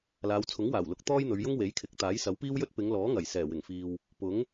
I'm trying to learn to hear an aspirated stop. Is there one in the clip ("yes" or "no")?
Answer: yes